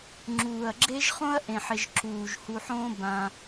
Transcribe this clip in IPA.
ŋ͡ǁ uː˨ ɐ̯ ɡ͡ǁ e˦ ʒ χ õ˦ ɐ̯ ʔ ẽ˨ ħ ɪ˨ ʒ ǁ uː˨ ʒ h u˧ ħ õ˦ b ã˧

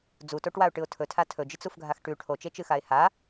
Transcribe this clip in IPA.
d͡z u t o ʈ w a ʊ̯ ʈ ɨ ʊ̯ tʰ ɵ tʰ a tʰ ɵ d͡ʒ ɨ t͡s u f ɡʱ a x ʈ ʉ ʈʰ o t͡ʃ e t͡ʃ ɨ x a ɪ̯ h a

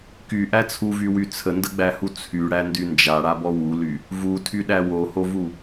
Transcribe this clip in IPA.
k y ʔ æ t͡sʰ u v y w y t͡sʰ ə n d ə ɡ͡b æ h u t͡sʰ y ɽ æ n d y n d͡ʒ a ɽ a b ɔ w u l y | v u tʰ y ɗ æ w o h o v u

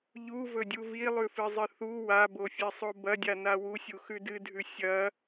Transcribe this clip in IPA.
ʎ u v ɵ dʲ u v i lˠ ʉ f ɨ zˤ ɨ θ u w a b o fʲ e sˤ o b ɐ dʲ a n a w u sʲ u x ʉ d ɨ dʱ ʉ sʲ ɐ

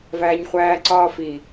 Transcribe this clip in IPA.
v æː ɲ χʷ æː ǀ ɒː f i

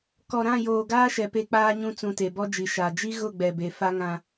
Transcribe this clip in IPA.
k ɔ˨ ɾ ã˦˨ j oː˨ ɡ aː˦ ʃ ɛ˨ p e˦ k͡p aː˦ ɲ ũ˦ t͡s ũ˨ t e˨ b ɔ˦ d͡ʒ i˨ ʃ a˨ d͡ʒ i˦ ɣ ʊ˦˨ ɡ͡b ɛ˨ b e˨ f a˦ ŋ ã˦

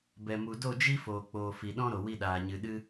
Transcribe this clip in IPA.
b ɛ˨ m u˨ d o˦˨ d͡ʒ i˦ f oː˨ k͡p oː˨ f i˨ ɗ ɔ̃˦ ɾ o˨ w i˧ ɗ aː˨ ɲ ɨ˨ ɗ ɨ˧

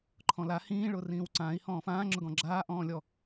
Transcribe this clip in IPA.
ǃʰ ɔ̃ l a h ĩː ɭ ʊː r ĩː w ǀ ãː i̯ h ɔ̃ː f ãː ŋ͡ǁ ʊ ɡ ɔ̃ ɡ͡ǁ aː ʔ ɔ̃ː lʲ ɔ

